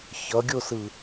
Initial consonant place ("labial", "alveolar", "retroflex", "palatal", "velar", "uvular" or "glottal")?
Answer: palatal